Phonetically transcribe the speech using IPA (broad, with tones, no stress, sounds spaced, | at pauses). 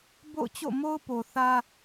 b o̰˦˨ ʊ̯ t͡ɕ o̰˦˨ m o˦ ʊ̯ p o˨ θ ä˦